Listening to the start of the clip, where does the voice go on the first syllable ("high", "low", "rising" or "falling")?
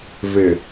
low